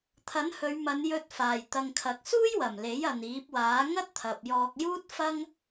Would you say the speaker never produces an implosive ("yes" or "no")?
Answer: yes